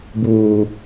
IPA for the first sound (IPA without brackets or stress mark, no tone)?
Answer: b